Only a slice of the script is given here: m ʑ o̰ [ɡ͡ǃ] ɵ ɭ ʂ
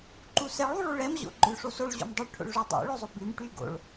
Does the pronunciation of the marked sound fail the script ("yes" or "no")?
no